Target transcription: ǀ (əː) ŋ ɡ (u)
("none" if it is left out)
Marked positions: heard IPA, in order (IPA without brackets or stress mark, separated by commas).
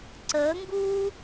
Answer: əː, uː